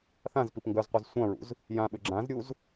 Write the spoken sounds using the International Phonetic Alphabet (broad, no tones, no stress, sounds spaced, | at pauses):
θ ã z p i p ŋ ɡ œ z qʷ a z sʷ ã ɹ ṵ z | j ã ɓ ʏ ɡ͡ǁ ã z ɾʲ u z